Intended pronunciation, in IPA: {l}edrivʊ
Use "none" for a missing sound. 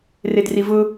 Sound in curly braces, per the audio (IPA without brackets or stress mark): r